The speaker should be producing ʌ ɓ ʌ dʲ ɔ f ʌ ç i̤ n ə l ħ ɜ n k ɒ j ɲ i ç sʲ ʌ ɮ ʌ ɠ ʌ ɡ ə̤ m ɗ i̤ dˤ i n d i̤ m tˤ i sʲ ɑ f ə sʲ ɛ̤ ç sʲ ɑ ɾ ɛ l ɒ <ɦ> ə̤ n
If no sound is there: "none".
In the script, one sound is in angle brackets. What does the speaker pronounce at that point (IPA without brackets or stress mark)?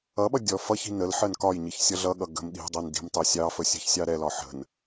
ħ